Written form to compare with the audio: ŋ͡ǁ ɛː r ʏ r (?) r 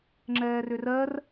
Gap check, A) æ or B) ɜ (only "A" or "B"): B